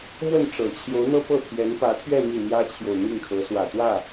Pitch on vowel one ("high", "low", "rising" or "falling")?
falling